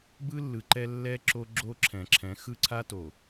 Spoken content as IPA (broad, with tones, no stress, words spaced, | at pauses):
bɯ˦lːɯ˨ǃɛ˦ lːɛ˦ǁo˦ɡ͡ǁo˦ ǁʰɛ̃˨ǁʰɛ̃˨˦ xɯ˦ǀʰa˦to˨